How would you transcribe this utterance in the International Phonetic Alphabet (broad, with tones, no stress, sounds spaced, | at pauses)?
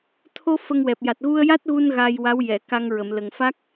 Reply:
t̪ʰ o˧ f ə˧ ŋ w ɛ˨˩ p̚ j a˨˩ t̚ ɣ u˧ ə̯ j a˦˥ t̚ ɣ u˧ n ɣ a˧ j w a˧˥ w j ɛ˨˩˨ k a˧ ŋ ɹ ə˨˩˨ m l ə˨˩ ŋ f a˦˥ k̚